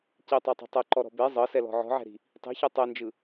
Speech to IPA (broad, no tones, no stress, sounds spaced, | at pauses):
c i tˤ a tˤ ɛ̤ tˤ ɛ ǃ ɔ ɾ ɔ̤ b e zˤ ɤ s ɛ l ɔ̤ ʕ ɔ̤ ʕ ɛ̤ ɾ i̤ | tˤ i̤ ç e tˤ e n d͡ʒ ɯ